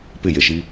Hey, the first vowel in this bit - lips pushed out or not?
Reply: no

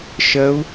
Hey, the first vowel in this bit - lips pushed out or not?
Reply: no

